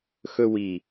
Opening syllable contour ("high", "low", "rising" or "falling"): high